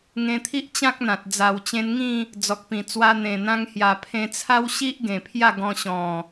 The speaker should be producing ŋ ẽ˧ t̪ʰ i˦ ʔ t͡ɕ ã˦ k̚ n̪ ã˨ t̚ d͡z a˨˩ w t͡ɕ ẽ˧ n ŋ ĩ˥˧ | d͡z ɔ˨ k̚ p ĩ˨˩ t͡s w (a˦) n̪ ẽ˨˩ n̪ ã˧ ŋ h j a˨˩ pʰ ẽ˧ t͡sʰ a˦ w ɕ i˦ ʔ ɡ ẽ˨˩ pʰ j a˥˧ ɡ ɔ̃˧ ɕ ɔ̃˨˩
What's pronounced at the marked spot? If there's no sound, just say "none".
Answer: a˧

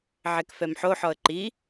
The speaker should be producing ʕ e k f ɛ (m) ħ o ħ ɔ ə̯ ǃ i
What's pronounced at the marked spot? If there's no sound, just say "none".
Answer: m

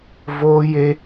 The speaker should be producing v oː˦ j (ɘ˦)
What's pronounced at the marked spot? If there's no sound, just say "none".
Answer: e˦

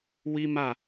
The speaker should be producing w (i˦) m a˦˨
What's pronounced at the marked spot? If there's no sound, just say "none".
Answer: i˦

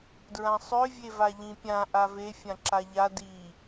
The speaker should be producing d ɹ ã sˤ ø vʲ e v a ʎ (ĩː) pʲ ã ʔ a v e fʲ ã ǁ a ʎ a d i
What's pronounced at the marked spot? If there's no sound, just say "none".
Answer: ĩ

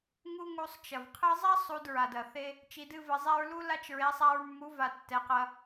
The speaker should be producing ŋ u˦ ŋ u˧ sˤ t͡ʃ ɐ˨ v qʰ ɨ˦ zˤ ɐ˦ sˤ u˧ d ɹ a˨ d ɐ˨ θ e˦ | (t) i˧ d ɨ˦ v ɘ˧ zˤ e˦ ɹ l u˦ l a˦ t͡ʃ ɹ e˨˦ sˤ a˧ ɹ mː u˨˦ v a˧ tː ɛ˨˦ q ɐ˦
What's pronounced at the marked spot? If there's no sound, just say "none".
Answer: t͡ʃ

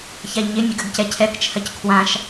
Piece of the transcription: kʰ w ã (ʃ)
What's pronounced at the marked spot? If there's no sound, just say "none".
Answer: ʃ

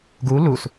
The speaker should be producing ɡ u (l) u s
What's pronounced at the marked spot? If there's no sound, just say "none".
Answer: l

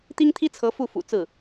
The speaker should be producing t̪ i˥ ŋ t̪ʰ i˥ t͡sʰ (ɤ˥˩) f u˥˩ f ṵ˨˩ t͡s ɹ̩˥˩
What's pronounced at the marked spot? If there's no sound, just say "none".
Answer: ɤ˧˥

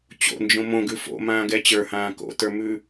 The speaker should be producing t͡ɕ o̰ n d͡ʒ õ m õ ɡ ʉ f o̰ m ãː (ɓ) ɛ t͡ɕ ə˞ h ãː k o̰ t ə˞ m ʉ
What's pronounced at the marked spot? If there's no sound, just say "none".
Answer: ɡ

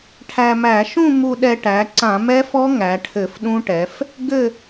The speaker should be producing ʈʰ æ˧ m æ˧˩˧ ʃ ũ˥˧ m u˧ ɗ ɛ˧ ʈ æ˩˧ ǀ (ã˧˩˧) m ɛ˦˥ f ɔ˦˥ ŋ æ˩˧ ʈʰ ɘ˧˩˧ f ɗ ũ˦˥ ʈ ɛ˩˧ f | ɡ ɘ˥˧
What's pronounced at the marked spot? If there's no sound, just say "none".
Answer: ã˧˩˧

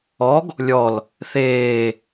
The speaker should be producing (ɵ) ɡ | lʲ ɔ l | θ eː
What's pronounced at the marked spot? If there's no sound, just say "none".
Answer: ɔ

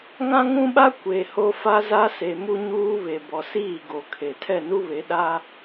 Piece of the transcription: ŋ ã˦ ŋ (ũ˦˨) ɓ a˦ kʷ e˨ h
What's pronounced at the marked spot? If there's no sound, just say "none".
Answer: ũ˦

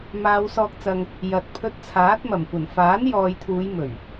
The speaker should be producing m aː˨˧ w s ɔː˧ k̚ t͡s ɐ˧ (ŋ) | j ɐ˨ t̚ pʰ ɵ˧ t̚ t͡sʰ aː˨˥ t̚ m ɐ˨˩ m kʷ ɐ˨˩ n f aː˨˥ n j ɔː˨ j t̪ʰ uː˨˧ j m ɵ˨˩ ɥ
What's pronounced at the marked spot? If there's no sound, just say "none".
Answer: ŋ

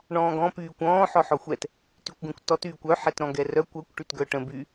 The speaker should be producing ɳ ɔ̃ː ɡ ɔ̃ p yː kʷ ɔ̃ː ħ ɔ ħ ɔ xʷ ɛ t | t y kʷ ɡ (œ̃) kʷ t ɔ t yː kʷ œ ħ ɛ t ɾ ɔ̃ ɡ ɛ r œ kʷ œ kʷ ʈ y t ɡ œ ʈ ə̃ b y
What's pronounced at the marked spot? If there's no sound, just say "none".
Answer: œ̃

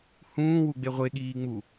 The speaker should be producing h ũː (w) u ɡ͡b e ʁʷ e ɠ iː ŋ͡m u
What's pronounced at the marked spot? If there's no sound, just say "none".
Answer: w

